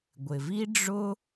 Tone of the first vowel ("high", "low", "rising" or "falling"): low